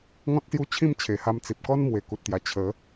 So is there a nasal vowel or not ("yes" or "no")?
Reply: yes